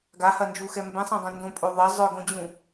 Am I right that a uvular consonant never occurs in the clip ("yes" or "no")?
yes